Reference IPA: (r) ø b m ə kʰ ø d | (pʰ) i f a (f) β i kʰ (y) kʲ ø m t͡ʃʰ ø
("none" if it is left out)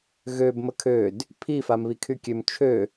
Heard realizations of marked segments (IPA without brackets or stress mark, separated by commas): ɣ, pʰ, m, y